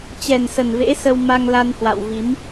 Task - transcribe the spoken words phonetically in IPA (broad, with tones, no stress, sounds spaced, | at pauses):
t͡ɕ ɛ˨˩ n s ə˨˩ n v ḛ˧˥ s ə˧ w m a˧ ŋ l a˧ n h w a̰˧˨ w v i˨˦ m